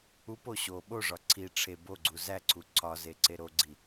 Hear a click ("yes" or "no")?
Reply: yes